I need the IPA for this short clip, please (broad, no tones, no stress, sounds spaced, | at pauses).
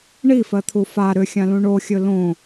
ɳ i f ɜ t̪ʰ u f a ɾ ʏ xʲ ã l ũ ɳ o xʲ ɵ l õ